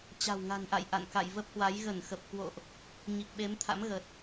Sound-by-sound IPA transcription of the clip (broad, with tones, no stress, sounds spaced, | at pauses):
t͡ɕ a̤˨˩ w ŋ a̤˨˩ n ʔ a̰˧˨ j ʔ a̰˧˨ n k a̰˧˨ j v ə˦˥ p̚ h w a˨˦ j ɣ ə˧˩ n x ə˨˩ p̚ k w o̰˧˨ ʔ | ɲ i˨˩ k̚ ɓ e˨˦ m t̪ʰ a̰˧˥ m ɣ ə˨˩ t̚